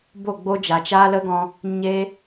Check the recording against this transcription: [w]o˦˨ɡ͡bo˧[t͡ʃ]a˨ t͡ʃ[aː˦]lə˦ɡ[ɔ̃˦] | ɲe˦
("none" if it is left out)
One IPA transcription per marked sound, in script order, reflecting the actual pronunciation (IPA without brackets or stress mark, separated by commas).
b, d͡ʒ, aː˦, ɔ̃˧